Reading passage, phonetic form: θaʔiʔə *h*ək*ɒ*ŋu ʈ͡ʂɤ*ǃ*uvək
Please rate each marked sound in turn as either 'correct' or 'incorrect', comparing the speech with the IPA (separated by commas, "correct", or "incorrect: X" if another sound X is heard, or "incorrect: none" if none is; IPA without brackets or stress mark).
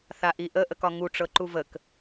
incorrect: ʔ, correct, correct